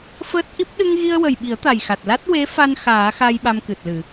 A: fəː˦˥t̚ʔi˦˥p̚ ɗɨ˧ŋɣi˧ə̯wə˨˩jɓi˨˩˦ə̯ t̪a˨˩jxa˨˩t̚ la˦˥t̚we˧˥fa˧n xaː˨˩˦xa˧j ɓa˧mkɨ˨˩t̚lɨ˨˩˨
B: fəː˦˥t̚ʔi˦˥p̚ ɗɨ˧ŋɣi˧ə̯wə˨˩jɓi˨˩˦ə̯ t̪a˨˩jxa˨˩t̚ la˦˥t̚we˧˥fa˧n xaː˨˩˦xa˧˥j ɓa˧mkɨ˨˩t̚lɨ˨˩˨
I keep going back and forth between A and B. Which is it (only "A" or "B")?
A